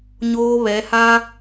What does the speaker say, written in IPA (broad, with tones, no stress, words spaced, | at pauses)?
ɲoː˦βɛ˨˦ha˦